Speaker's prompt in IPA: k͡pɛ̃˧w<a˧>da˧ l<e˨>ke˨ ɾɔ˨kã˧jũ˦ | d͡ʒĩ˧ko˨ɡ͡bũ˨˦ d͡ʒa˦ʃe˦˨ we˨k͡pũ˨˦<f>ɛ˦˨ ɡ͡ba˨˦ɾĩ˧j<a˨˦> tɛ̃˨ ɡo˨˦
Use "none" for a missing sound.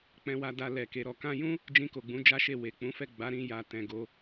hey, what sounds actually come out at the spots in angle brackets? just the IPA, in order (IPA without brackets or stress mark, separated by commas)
a˧, ɛ˨, f, a˨